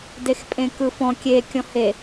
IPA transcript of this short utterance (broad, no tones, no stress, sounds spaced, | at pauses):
d e x pʼ ẽ k ɯ f ɔ̃ kʲ e kʲ ɔ̃ h e